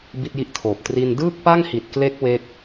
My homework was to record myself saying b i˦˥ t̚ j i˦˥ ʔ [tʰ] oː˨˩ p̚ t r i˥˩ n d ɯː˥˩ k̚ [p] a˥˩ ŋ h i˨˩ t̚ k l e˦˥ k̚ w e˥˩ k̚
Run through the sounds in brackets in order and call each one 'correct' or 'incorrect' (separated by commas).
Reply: correct, correct